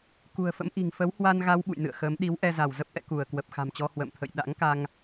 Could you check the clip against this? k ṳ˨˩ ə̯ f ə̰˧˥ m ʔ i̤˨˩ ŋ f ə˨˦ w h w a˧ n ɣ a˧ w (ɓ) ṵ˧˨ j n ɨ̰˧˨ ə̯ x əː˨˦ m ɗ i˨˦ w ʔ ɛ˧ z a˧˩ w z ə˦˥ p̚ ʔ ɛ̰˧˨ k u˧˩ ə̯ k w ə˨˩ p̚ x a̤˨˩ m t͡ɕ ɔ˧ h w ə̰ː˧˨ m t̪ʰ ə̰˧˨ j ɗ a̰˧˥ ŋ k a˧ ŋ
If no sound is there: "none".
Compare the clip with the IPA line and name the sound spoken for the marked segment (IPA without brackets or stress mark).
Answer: ɓ